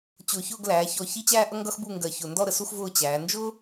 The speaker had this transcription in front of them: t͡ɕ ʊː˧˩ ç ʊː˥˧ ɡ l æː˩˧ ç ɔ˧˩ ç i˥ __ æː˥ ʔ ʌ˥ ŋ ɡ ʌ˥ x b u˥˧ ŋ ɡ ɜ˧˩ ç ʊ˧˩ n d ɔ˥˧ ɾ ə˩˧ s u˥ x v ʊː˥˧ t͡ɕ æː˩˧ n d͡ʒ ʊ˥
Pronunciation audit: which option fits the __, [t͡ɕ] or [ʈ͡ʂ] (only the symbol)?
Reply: t͡ɕ